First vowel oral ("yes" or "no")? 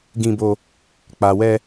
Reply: no